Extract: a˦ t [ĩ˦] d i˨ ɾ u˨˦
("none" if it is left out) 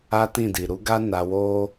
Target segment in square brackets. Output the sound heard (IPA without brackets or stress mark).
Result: ĩ˦˨